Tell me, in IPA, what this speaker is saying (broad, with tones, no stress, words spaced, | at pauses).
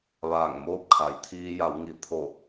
ʋaː˧˩ŋmoː˥˨p̚kʰa˩˧j t̪ʰiː˧ja˩˧wŋi˩ t̪ʰo˧˩